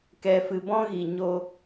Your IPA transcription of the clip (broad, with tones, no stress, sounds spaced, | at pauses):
k ɛ˧ f ɨ˧ b ɔ̃˦ ɣ i˨ ɲ o˧